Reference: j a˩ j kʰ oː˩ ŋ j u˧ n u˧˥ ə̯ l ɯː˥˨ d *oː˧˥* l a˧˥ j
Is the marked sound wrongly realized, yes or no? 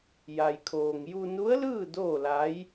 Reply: yes